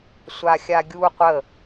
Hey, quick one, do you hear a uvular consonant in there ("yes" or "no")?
yes